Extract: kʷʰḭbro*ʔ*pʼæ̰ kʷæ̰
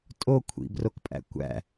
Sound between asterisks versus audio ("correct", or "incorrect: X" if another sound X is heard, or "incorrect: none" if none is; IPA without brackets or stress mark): incorrect: k